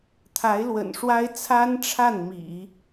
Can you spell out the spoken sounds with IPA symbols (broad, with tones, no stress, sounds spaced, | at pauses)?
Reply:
t̪ʰ a˧˥ ɪ̯ l w ə̰˨˩ n ʂ w a˥ ɪ̯ t͡sʰ a˥ n ʈ͡ʂʰ a˥˩ n m ḭ˨˩˦